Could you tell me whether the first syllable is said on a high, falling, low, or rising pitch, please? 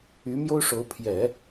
rising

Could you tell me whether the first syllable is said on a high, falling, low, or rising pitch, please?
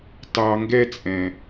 low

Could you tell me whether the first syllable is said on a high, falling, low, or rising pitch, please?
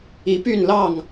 rising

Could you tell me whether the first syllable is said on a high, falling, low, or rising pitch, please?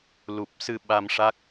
low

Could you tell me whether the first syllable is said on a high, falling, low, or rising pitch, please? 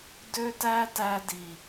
high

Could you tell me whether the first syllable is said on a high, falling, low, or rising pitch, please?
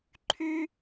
high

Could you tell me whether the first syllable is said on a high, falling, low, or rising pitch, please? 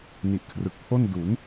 low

